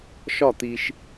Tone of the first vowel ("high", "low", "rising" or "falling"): falling